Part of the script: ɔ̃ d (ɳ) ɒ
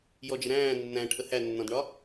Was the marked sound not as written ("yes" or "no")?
no